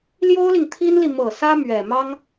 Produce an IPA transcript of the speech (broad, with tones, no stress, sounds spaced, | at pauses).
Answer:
l j o˥ ʊ̯ l i˨ ŋ t̪ʰ i˥ n l i˨ m ɤ˨˩ s ä˥ m ɥ ɛ˨˩ m ɑ˥ ŋ